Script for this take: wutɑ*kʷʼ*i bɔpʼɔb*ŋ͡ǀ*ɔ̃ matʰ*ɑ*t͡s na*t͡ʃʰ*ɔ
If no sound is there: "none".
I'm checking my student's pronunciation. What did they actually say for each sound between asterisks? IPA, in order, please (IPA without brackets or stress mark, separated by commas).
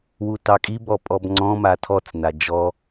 kʼ, ŋ͡ǀ, ɔ, d͡ʒ